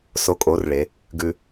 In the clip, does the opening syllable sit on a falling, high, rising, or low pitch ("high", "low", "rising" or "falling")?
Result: rising